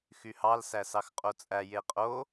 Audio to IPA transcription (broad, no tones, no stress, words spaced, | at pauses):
xyhɑl sæsɑxqʼot͡sʼæ jeqʼo